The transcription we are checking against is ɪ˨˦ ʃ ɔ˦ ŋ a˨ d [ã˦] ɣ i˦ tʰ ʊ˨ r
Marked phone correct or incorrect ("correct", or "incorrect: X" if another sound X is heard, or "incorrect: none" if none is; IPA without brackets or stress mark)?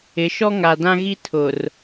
correct